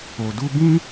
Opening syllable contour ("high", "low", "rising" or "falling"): low